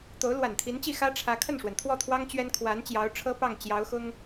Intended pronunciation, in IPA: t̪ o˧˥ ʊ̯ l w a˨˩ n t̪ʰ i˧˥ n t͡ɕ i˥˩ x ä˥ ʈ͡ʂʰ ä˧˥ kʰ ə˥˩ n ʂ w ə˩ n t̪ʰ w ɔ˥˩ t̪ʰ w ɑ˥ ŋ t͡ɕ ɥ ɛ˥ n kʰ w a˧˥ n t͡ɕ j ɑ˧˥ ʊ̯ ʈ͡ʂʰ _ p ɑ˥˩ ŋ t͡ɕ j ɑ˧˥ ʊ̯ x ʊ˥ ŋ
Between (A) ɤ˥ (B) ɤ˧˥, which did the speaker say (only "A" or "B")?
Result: A